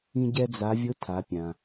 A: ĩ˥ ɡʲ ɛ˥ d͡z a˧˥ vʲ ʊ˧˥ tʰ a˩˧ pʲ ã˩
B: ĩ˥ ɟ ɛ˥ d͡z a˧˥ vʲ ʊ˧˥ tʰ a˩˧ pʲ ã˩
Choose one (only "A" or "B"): B